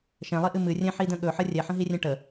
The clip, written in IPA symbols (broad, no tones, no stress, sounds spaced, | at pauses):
ʃ ɛ̃ lˠ i ʔ ɨ m ɨ rʲ ɛ̃ ħ i d ə̃ ɠ ɵ ħ ə rʲ ɛ ħ ə̃ ɦ i rʲ ɛ̃ ʈ ə